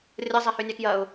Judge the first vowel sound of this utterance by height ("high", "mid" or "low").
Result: low